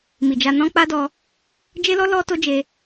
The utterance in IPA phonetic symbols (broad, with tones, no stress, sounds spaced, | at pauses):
m i˨ d͡ʒ a˧ n ɔ̃˦ k͡p a˦ d ɔ˧ | d͡ʒ e˦ l ɔ˦ l ɔ˦ t o˦ d͡ʒ e˧